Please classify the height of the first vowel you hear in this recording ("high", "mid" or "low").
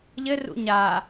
mid